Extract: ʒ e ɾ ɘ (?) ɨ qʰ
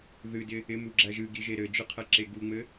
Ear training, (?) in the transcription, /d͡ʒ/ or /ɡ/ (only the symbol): d͡ʒ